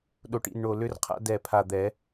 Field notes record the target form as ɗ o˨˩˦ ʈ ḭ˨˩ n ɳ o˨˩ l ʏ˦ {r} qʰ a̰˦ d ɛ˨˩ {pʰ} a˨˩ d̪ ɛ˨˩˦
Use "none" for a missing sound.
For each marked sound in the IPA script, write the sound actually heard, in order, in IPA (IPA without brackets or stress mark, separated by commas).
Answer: r, pʰ